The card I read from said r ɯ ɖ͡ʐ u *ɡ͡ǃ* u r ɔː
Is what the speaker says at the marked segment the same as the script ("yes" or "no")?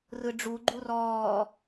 yes